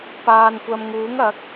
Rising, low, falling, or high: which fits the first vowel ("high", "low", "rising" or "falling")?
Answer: low